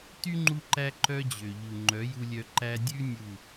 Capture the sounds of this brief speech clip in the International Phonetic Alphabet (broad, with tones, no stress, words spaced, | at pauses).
ty˦ŋ͡ǃu˧ǃæ˧ ǃœ˦d͡ʑø˨ʎu˨ ŋ͡ǃœ˨˦ju˧lʲœ˧ ǃæ˧dʲʉ˦ nʲu˦˨